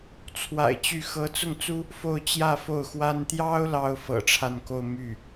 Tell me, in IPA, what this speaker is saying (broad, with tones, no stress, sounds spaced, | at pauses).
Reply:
t͡sʰ w a̰˨˩ ɪ̯ t͡ɕ y˥˩ x ɤ˧˥ t͡s ʊ˥˩ ŋ t͡s u˥ | f o˥˧ ʊ̯ t͡ɕ j ä˥˧ f o˥˩ ʊ̯ x w a˥ n t̪ j ɑ˥ ʊ̯ l ɑ˥ ʊ̯ f ɤ̰˨˩ ʈ͡ʂʰ a˥˧ n k o˥˧ ʊ̯ m y˥˩